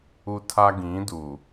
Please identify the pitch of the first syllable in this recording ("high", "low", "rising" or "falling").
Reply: high